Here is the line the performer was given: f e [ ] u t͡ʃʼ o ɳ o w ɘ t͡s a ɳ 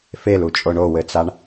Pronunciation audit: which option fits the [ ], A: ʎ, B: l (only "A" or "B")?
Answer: B